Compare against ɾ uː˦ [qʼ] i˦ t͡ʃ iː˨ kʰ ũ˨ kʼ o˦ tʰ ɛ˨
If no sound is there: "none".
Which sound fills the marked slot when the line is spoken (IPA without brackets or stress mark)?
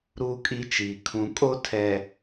kʼ